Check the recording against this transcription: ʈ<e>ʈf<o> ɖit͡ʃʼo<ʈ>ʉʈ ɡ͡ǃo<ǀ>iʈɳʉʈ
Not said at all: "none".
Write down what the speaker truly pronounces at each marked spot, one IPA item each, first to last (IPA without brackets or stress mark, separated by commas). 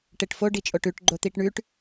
e, o, ʈ, t̪